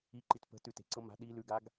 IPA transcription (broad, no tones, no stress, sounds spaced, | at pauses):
i ǃ i t p ə̤ t ʉ t e̤ ǀ ɤ m a̤ ɗ i l ʉ ɡ a ɡ